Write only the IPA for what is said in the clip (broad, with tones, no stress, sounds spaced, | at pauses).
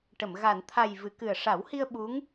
ʈ ə˨˩˨ m ɣ a˨˩˨ n t̪ʰ a˨˩ j v ɨ˨˩˨ k ɨ˨˩ ə̯ ʂ a˨˩˦ w h i˧ ə̯ ɓ u˧˥ ŋ